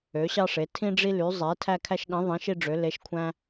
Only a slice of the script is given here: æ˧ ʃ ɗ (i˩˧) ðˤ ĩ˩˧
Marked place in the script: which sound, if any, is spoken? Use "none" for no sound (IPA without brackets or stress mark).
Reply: ĩ˩˧